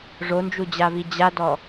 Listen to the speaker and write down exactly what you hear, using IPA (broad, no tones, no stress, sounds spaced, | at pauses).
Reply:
ʐ o n d͡ʒ u d͡ʑ a v i d͡ʑ a d ɔ